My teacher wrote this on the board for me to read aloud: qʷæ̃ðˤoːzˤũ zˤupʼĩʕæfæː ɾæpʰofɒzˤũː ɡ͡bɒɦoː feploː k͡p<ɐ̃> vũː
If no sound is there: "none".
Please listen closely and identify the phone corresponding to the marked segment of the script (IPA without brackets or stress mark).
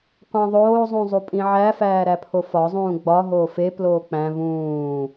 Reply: æ̃